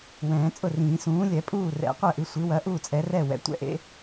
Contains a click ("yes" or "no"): no